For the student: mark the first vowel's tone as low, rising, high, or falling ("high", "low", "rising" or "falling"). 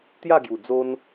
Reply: falling